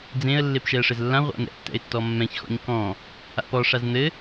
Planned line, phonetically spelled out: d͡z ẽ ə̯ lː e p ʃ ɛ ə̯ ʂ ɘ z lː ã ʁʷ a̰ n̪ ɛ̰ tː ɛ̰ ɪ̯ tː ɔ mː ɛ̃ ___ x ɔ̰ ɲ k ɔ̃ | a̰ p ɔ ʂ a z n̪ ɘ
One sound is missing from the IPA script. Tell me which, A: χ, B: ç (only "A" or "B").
B